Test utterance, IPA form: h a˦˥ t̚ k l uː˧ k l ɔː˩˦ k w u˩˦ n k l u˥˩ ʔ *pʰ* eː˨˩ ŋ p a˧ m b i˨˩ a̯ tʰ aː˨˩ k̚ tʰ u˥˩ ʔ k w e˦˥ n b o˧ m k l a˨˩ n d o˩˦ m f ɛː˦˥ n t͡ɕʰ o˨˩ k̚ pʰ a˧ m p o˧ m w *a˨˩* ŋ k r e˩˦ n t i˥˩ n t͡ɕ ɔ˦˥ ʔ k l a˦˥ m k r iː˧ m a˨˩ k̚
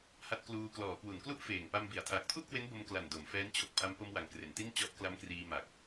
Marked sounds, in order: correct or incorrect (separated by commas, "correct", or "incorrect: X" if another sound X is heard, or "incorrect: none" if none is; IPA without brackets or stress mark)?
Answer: incorrect: f, incorrect: a˩˦